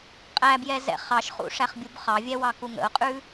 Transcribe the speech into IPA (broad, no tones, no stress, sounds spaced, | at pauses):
qʼ æ b j ɛ z ɛ̰ χ ɑ ʃ χ ṵ ʂ æ χ bʲ u b χ ɑ vʲ ɛ w ɑ k u ŋ ə̰ ʊ̯ qʼ ʉ